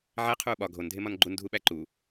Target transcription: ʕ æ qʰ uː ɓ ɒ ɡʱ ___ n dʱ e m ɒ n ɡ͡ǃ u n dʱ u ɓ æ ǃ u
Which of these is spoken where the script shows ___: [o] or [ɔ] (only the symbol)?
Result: o